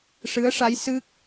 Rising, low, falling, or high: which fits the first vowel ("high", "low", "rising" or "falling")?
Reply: rising